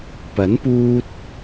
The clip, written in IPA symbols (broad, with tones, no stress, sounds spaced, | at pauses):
p ɐ˨˥ n p uː˧ t̚